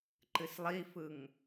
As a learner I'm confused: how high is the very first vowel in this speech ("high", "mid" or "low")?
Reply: high